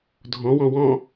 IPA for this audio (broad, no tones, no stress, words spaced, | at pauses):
dʱɔ̃wɔ̃ wɔ̃